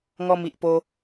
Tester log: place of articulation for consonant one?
velar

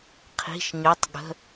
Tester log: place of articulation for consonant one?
uvular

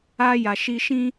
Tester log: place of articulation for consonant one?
palatal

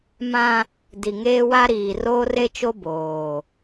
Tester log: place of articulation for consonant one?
labial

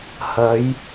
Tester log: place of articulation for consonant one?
glottal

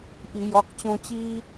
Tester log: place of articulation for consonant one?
glottal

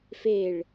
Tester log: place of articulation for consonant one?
labial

